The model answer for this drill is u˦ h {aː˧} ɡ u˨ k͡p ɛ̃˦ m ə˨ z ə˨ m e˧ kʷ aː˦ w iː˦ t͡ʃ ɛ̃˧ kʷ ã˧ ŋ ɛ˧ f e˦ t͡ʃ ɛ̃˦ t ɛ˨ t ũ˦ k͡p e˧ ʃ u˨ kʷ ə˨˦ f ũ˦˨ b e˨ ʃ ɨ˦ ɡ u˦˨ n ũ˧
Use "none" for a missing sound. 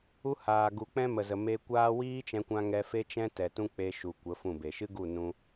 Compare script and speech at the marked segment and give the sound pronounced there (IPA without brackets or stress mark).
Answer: aː˨